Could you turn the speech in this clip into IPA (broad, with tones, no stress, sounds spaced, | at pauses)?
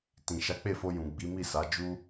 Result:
t ĩ˨ ʃ a˨˦ k͡p e˦˨ f o˧ j ũ˨ ɡ͡b i˨˦ m i˦˨ s a˨˦ d͡ʒ u˦